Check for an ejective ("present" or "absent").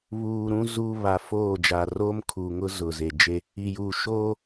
absent